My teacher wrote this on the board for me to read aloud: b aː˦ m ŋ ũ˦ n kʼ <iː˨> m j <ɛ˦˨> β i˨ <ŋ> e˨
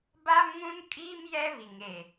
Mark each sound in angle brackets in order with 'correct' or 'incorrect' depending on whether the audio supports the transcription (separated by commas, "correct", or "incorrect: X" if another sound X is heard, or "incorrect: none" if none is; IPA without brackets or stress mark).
incorrect: iː˦, incorrect: ɛ˦, correct